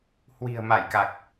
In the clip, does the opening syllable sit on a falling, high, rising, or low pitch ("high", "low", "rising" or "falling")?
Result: low